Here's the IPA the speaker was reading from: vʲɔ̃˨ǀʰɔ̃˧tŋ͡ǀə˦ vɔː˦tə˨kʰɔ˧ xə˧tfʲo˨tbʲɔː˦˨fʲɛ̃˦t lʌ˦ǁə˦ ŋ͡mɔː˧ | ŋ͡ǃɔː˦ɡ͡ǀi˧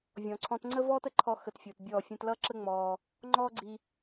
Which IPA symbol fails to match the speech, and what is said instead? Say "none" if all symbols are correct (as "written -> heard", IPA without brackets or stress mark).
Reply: kʰ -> ǃʰ